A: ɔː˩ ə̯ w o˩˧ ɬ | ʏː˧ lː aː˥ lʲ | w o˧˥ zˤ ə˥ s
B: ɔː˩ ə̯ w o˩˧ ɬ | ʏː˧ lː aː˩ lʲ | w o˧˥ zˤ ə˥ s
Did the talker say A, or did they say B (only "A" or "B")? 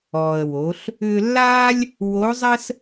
A